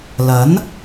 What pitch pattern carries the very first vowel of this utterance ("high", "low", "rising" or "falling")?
rising